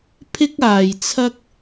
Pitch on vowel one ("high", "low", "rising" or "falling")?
high